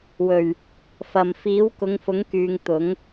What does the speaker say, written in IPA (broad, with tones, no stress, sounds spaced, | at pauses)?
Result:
w ɵ˨˩ ɥ | f ɐ˨˩ m f iː˨˥ w k ʊ˨˧ ŋ f ʊ˨˥ ŋ k yː˨ ŋ t̪ ʊ˨˥ ŋ